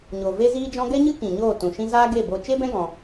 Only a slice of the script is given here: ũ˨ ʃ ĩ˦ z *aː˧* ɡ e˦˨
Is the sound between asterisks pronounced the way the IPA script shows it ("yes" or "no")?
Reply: no